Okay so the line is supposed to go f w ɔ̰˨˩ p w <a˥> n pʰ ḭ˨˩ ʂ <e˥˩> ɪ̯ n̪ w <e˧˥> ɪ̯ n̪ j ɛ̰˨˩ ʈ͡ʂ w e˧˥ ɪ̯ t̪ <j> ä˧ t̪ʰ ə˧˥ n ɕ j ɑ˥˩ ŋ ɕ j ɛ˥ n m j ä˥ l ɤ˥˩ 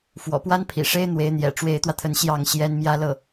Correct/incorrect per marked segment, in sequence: correct, incorrect, correct, incorrect

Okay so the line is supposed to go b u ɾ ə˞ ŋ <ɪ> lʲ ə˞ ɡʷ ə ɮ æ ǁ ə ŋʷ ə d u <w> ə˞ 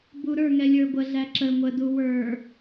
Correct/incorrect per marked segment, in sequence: incorrect, correct

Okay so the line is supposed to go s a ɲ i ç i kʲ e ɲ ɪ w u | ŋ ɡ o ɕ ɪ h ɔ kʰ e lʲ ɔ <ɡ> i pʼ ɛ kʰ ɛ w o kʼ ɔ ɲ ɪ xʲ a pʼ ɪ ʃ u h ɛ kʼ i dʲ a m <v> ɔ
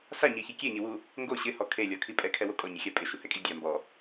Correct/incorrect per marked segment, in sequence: incorrect, incorrect

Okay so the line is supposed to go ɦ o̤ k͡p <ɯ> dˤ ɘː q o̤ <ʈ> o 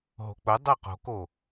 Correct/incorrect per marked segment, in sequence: incorrect, incorrect

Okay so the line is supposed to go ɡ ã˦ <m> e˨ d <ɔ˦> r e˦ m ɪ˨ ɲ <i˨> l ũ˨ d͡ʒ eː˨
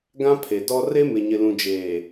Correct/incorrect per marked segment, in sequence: incorrect, correct, incorrect

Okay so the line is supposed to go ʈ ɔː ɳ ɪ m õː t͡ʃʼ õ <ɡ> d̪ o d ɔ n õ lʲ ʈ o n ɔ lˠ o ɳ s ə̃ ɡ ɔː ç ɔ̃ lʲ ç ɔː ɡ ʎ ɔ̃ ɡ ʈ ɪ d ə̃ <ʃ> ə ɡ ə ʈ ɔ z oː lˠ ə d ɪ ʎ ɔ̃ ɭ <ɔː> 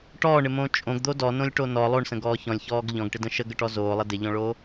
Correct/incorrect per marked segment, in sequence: correct, correct, incorrect

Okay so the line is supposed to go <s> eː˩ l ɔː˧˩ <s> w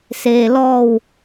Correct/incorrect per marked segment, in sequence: correct, incorrect

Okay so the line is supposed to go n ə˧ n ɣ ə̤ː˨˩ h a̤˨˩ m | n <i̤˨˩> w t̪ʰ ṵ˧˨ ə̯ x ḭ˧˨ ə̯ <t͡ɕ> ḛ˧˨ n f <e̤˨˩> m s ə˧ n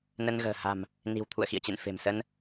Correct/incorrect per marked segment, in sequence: correct, correct, correct

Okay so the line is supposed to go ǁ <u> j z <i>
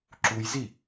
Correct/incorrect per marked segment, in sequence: correct, correct

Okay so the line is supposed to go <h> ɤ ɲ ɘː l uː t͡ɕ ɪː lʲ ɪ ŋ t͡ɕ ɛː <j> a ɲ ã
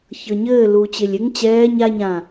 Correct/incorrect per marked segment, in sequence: incorrect, incorrect

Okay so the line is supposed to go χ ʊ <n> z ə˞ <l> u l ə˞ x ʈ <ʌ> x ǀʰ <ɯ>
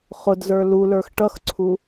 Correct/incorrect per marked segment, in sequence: incorrect, correct, correct, incorrect

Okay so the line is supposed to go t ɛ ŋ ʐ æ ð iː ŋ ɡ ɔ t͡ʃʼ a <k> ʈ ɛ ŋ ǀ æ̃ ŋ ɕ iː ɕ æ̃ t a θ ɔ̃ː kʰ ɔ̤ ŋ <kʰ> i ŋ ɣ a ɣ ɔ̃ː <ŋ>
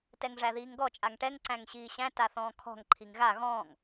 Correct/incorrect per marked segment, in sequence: incorrect, incorrect, correct

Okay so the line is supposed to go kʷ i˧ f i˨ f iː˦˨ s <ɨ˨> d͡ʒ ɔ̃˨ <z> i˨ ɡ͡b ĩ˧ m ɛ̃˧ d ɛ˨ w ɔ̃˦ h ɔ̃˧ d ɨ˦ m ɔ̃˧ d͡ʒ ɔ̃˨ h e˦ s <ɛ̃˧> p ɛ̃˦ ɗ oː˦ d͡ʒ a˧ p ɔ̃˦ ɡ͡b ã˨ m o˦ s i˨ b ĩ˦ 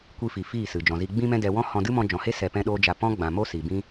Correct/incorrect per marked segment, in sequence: correct, correct, incorrect

